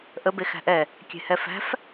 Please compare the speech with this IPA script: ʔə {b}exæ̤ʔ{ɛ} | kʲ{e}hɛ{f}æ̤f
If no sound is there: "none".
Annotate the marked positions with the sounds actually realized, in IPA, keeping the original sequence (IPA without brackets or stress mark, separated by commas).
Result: b, ɛ, e̤, f